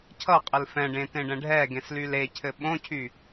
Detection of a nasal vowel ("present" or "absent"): present